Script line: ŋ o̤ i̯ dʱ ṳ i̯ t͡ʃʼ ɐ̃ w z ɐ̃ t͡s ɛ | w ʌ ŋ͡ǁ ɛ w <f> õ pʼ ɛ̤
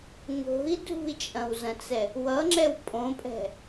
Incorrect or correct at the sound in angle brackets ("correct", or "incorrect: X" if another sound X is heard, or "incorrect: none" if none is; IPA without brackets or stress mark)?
incorrect: pʼ